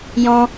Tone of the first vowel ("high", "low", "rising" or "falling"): high